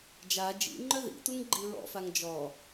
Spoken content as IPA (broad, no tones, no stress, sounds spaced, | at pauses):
d͡ʒ a d͡ʒ ḭ ŋ͡ǃ œ ð ḭ t u ŋ ɡ͡ǃ i ɹ ɔ̰ f a ŋ d͡ʒ ɔ